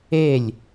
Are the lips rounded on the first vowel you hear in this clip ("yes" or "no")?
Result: no